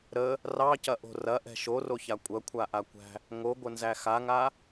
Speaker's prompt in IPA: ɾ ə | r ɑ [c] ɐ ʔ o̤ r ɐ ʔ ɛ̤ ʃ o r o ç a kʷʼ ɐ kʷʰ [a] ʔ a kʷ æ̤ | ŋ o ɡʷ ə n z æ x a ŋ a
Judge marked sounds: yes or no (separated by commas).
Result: yes, yes